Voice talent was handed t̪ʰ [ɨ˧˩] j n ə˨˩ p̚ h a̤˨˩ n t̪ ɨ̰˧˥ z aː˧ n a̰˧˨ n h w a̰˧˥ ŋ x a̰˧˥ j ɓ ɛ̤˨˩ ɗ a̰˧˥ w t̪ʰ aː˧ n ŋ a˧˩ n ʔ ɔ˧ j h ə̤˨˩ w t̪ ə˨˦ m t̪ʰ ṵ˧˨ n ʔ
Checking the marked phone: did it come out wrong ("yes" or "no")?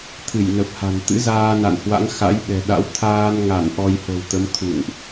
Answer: no